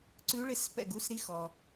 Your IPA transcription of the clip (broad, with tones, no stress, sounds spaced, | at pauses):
ǀ ʉ˧˥ ɭ ɪ˥˩ s p ɛ̰˥˩ ɡ u˧˥˧ s ɾ i˧˥ x ɔ˨